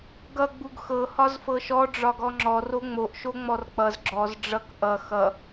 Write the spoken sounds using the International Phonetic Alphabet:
ɡʌ ɡ͡buɡxɤ hɒzfɤʃɔ ɖ͡ʐɒɡɔŋ͡ǁɔ roŋ͡moʔ ʃoŋ͡mɔrk͡pʌz ɡ͡ǁɔz ɖ͡ʐʌk ʔʌ xʌ

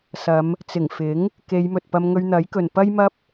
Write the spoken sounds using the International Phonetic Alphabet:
sɐ˨˧m | t͡sɪ˨˩ŋfɪ˨˥ŋ | ke˨˧jmɵ˨t̚pɐ˧m ŋɵ˧ɥn̪ɐ˨˥jkɵ˨n pɐ˥jmɐ˥p̚

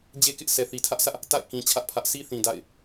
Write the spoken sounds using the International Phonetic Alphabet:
d͡ʑe˦kɪ˦ʔ sɛ˨θi˨tʰä˦ʔsä˦ʔ | ta̰˦˨ɪ̯ kĩ˨ t͡ɕʰä˦ʔpʰä˦ʔ sʰi˦θĩ˨ da̰˦˨ɪ̯

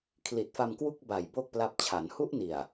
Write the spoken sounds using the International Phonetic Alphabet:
kʰli˨˩t̚fa˧mkwu˥˩k̚ ba˨˩j bo˥˩k̚pla˦˥p̚t͡ɕʰa˩˦n hu˦˥ʔni˨˩a̯

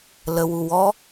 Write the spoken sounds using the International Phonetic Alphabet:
ləwuwɔ

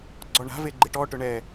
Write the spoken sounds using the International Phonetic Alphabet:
ɡ͡ǀɔɳa̤ve ɡ͡ǃɪʈɔʈʊ ɳɛ

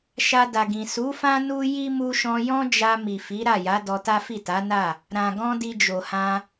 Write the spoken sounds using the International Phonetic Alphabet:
ʃa˧da˨ɡĩ˨ su˨˦fã˦ nu˦ ji˦ mu˧ʃɔ̃˧jɔ̃˦d͡ʒa˧ mi˨fi˨˦ ɾa˦˨ja˨˦ dɔ˧ta˦fi˦˨ ta˨˦na˦˨ | ɾã˨ɡɔ̃˧ di˧d͡ʒo˨hã˧

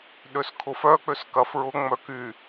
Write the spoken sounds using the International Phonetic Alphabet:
ɗøskʰʊfœk͡pøs kɐfɹʊŋ͡mœ ky

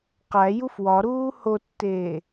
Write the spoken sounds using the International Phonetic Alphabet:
qæ jufwɒɾuː hotːeː

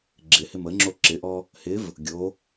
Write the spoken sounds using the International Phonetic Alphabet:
ɡ͡ǁɪhɪm əŋ͡ǁo ǁɪʔɔ | hɪv | ɡʲo

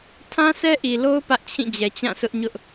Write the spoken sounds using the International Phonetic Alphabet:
tʰã˦sɛ˦ʔi˨lo˦ʊ̯ pä˦ʔt͡ɕʰĩ˦˨d͡ʑɛ˨ t͡ɕã˦˨sʰʊ˦ʔɲʊ˦ʔ

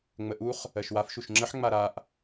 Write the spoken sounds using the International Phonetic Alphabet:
ŋ͡məʔuχ | ɜʃwaf ʃuʃŋ͡ǁəħ ŋ͡maɾaʔ

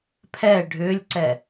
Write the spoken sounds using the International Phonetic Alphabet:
pʰɛ ɖʱʏːlʲǀɛ

